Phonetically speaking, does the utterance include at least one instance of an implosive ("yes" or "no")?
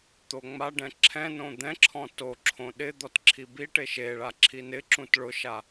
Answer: yes